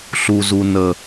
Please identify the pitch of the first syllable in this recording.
low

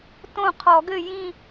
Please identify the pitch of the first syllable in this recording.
falling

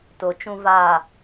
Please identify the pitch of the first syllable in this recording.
low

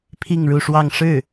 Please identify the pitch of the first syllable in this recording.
falling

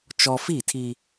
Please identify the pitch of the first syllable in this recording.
high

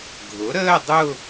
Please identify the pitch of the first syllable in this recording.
rising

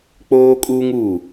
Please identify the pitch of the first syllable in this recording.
high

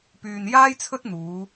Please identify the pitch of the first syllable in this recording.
low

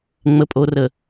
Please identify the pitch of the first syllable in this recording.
low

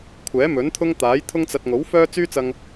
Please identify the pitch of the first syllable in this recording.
rising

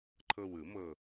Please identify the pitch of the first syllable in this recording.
low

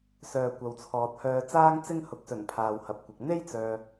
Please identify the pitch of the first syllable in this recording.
low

